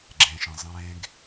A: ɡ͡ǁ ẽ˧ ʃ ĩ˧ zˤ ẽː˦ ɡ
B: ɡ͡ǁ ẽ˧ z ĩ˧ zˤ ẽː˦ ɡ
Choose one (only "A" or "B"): A